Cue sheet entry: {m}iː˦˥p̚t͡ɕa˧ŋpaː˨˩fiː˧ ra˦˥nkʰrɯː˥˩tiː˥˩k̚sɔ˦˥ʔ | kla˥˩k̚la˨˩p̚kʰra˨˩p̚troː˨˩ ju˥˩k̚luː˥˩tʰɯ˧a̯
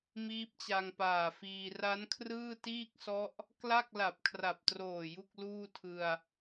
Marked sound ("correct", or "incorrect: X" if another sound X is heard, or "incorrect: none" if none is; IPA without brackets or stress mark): correct